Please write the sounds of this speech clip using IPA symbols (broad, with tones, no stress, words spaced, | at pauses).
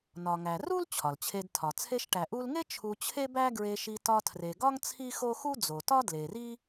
nɒ˩ŋæ˩ru˥l t͡ɕʰɒ˩lt͡ɕʰe˧dtʰɒ˩ t͡sʰe˧ʃʈæ˩ʔu˧lŋe˥ t͡ʃʰu˧ t͡ɕʰe˥bæ˥ɡɹe˧ʃi˧ tɒ˧tʰre˩ɡɒ˥ŋ t͡sʰi˥xo˥ xu˥d͡zo˩tɒ˥ dle˩ri˥